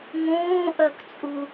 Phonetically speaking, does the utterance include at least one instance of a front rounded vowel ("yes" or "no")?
yes